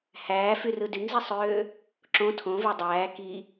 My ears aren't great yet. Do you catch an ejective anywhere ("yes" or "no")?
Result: no